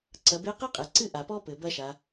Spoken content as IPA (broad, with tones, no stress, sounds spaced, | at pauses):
ǀ ɐ˩˧ b e˧˥ q e˥ qʼ e˩ ǀ ɨ˥ ʔ a˩ p ɔ˥ p ɘ˩ b ɐ˥ ʃ a˩˧